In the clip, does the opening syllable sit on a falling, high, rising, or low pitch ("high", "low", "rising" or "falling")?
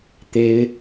high